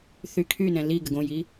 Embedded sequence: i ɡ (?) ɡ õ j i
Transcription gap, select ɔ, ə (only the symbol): ə